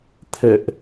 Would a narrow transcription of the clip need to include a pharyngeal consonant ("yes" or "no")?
no